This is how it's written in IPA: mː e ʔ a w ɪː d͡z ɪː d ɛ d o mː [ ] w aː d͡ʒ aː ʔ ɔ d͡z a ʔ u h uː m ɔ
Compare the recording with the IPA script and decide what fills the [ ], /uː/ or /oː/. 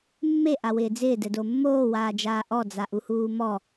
oː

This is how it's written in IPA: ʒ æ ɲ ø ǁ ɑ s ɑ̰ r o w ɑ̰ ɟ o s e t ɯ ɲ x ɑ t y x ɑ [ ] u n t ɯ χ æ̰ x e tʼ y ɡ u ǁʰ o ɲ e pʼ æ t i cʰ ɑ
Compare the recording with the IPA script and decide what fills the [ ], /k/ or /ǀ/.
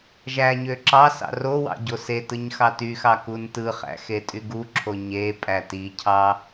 k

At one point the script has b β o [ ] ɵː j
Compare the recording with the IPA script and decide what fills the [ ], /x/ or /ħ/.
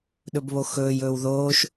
x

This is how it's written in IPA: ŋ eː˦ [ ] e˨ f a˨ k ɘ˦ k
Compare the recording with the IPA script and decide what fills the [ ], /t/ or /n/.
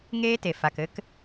t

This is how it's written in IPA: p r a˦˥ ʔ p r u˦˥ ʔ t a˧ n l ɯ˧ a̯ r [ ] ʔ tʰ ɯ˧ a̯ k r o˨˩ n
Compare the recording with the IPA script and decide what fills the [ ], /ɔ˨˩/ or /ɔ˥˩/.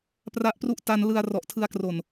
ɔ˨˩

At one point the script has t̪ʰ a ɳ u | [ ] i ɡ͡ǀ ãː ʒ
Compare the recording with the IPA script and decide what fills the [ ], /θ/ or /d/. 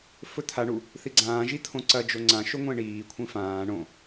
θ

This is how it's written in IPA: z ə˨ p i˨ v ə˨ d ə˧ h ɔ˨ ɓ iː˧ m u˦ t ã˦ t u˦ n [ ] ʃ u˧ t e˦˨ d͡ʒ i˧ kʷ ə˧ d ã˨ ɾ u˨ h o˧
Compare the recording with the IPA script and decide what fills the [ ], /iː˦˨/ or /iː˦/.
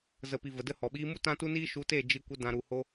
iː˦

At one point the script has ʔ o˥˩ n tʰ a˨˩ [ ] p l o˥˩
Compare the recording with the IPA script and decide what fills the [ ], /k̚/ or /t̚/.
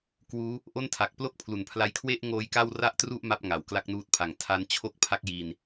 k̚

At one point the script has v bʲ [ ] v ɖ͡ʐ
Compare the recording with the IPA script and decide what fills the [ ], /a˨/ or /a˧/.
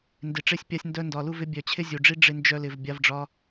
a˧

